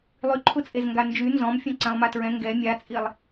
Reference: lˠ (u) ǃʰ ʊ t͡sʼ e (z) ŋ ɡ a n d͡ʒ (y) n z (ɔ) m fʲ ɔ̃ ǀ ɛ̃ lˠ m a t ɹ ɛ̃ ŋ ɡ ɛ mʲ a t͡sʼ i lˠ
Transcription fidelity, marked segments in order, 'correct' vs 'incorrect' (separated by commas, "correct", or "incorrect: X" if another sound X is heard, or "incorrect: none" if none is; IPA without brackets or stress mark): incorrect: y, correct, correct, incorrect: ɔ̃